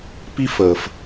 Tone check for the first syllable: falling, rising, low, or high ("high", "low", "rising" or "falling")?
high